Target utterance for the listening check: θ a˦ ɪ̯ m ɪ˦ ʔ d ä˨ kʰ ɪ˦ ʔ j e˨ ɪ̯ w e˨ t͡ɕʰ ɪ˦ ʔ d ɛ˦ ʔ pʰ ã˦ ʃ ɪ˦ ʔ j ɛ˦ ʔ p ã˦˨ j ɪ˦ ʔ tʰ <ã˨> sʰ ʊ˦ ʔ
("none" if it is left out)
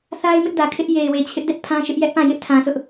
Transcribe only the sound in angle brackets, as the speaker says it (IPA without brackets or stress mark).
ã˨